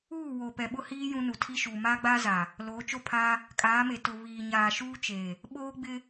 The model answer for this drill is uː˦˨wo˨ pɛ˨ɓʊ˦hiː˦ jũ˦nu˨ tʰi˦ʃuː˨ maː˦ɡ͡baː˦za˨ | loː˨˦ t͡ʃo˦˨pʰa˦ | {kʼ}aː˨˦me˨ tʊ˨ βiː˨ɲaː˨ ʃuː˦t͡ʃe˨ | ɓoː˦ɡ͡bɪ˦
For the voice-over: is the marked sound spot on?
yes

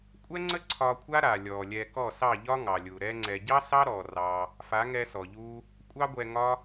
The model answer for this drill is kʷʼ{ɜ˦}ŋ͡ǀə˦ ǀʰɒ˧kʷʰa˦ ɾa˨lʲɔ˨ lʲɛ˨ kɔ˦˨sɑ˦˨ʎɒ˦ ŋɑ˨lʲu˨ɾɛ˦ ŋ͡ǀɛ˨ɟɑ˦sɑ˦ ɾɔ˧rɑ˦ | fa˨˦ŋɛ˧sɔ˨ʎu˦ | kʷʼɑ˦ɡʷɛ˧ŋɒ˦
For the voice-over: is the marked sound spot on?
no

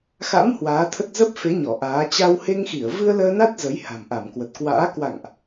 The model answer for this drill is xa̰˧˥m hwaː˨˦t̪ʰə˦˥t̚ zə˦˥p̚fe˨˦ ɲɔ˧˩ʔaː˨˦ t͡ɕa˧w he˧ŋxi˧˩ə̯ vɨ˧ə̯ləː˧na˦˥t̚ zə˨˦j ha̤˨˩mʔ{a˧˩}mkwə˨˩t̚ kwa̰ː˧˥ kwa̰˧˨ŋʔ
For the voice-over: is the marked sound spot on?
yes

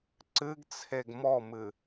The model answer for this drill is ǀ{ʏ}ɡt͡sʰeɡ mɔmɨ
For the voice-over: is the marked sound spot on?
no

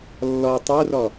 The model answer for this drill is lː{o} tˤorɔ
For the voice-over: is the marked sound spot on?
no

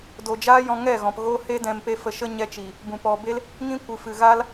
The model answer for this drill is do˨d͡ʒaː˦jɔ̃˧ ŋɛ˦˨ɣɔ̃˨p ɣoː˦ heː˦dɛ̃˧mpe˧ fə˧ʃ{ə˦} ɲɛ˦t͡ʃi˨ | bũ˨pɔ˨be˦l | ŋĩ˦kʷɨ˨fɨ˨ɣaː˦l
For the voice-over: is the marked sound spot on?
yes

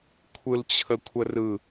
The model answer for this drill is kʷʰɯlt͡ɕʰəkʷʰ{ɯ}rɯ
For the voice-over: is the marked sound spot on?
no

